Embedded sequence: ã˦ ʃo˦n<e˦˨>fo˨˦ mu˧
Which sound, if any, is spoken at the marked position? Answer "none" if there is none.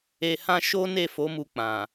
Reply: e˦˨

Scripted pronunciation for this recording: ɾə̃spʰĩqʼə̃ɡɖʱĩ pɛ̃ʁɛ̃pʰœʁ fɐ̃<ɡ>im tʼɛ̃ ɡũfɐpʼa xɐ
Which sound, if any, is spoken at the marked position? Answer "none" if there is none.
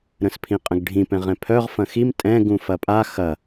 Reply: x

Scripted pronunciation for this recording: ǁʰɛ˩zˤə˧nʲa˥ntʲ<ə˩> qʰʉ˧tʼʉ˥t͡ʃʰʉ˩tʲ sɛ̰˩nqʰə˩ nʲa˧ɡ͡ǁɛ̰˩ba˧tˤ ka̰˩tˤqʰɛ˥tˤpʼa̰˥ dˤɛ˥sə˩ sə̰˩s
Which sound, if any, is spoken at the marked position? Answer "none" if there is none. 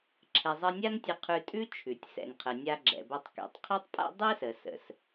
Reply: ə˧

